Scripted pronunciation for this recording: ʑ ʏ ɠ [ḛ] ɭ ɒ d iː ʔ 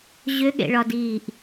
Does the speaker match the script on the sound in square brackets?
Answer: yes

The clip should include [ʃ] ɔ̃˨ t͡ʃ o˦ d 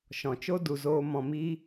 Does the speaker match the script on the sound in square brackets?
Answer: yes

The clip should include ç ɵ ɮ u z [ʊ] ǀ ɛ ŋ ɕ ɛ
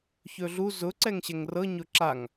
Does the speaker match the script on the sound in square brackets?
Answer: yes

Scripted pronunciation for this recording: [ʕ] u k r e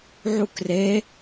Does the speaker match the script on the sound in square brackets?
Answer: yes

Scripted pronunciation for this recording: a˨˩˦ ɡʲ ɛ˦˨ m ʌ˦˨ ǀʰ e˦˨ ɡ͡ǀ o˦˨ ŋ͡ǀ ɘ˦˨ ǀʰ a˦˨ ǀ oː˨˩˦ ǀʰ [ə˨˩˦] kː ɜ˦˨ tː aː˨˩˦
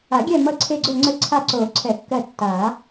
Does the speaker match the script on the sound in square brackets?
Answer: no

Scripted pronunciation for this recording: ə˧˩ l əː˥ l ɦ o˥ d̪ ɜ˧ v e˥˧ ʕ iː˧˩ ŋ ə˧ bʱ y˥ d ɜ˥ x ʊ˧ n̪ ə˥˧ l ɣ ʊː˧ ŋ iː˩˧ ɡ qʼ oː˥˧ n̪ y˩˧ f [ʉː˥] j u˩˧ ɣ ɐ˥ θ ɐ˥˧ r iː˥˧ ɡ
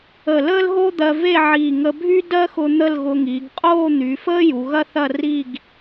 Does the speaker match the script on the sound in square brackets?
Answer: no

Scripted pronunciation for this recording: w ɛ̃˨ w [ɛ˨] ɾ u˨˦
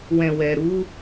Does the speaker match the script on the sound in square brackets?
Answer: yes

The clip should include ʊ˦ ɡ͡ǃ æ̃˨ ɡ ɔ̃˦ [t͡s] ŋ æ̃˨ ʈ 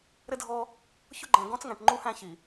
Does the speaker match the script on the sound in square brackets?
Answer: yes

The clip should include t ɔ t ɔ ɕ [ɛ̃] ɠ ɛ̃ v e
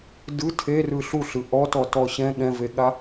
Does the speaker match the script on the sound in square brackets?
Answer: yes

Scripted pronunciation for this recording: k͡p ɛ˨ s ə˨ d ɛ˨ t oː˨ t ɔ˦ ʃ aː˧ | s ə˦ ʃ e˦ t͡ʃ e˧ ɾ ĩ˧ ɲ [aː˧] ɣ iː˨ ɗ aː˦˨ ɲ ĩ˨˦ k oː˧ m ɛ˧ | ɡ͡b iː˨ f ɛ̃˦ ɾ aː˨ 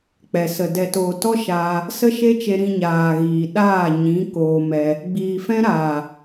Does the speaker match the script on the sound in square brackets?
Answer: no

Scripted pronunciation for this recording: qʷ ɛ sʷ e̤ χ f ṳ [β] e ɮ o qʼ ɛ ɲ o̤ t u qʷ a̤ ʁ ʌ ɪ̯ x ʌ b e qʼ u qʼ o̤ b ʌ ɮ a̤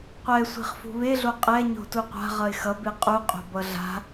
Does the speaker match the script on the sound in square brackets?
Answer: yes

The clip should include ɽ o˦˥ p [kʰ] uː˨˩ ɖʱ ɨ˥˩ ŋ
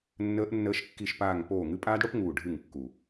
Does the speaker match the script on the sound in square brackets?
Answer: no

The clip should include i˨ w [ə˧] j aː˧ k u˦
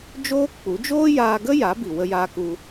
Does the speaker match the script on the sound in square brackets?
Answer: yes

